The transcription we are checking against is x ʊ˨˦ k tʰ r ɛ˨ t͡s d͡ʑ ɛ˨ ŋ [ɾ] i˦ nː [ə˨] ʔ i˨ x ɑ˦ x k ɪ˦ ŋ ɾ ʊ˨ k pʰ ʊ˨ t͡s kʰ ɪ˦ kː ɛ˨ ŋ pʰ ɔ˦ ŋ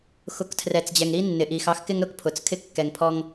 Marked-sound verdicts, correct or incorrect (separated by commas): correct, incorrect